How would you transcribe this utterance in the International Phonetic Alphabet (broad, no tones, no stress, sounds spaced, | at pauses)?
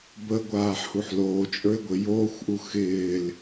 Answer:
b ə ɡʷ aː ħ h u ħ l oː t͡ʃʼ ə˞ e̯ ɡʷ ɪ j oː xʷ ʔ u x ɪː l